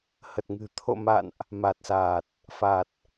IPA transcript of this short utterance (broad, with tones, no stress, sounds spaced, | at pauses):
h ə˨˩ t̚ ŋ ɨ̤˨˩ t̪ʰ o̰˧˨ m a̰˧˨ n ʔ | m a˨˩ t̚ s aː˨˩ t̚ | f a˨˩ t̚